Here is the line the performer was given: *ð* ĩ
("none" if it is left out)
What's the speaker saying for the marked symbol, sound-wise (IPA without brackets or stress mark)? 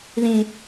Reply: ð